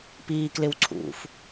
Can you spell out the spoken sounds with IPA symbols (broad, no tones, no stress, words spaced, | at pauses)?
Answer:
piːklɪwǀʰṵf